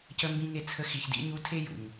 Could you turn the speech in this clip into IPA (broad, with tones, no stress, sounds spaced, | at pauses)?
c ə˧ m b ĩ˧ ŋ e˧ t͡sʰ ə˧ x i˨ ç d ḭ˧ ɲ u˧ tʰ e˦ j ṵ˨ ɲ